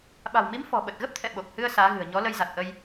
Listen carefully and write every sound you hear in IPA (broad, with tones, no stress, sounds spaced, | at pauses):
ɓ a̤˨˩ w m i˨˦ m f ɔ̤˨˩ ɓ ə˨˩ t̚ ɣ ə˦˥ p̚ t̪ʰ ɛ̰˧˨ ɓ o˨˩ k̚ h ɨ˧ ə̯ s aː˨˦ ɣ ɨ̤˨˩ ə̯ ɲ ɔ˨˦ l ə˧ j z a˨˩ t̚ ʔ ə˧ j